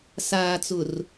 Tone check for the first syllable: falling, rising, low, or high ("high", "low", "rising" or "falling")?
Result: low